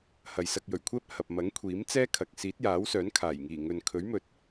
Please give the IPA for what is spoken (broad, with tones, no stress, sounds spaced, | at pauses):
h ɐ˨ j s ɐ˧ k̚ j ɵ˨˩ ɥ kʷʰ ɛː˥ p̚ h ɐ˨ p̚ m ɐ˨˥ ŋ kʷʰ iː˨˥ m t͡s ɛː˥ kʰ ɐ˨ k̚ s iː˨˥ t̚ j aː˨˥ w s œː˨˥ n kʰ aː˨˩ j ŋ iː˨˩ ŋ ɵ˨ n kʰ ɵ˨˥ ɥ m ɵ˨ t̚